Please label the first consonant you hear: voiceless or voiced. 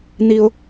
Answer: voiced